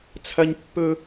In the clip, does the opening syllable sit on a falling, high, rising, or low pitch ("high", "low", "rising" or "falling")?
high